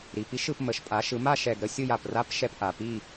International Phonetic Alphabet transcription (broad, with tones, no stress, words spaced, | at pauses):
ɾi˨˩pi˦ʃɯ˦˨p mə˩˥ʃpʼa˩˥ʃɯ˩˥ ma˦˨ʃɛ˨˩ɡ ɾə˦ sʲɯ˦˨j a˨˩pra˦p ʃɛ˦˨p ʔa˨˩pi˦˨